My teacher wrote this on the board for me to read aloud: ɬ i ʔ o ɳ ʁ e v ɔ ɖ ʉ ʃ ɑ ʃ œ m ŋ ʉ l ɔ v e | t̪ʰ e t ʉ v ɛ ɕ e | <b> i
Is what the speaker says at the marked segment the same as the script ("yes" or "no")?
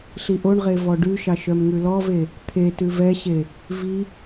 no